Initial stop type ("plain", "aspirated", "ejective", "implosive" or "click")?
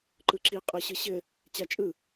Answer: click